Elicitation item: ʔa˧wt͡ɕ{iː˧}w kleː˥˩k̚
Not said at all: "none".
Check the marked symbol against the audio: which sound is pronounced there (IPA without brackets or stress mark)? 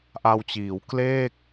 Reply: iː˩˦